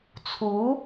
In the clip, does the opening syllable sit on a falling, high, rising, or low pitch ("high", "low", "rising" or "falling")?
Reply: rising